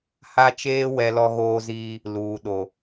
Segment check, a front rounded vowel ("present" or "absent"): absent